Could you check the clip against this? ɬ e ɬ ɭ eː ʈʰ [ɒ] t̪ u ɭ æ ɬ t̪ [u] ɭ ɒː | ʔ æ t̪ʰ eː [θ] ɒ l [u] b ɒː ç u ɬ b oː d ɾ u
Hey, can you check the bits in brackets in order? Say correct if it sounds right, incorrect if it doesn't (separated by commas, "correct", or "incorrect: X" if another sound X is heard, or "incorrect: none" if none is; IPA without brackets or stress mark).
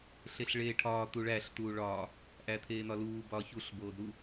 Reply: incorrect: ɒː, incorrect: uː, incorrect: n̪, incorrect: uː